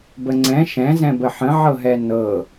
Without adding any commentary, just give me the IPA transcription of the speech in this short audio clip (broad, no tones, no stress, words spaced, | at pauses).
bəŋ͡ǀɛ̃ ʃɛ̃zɛ̃bə ħə̃ʕɤɦɛ nɤ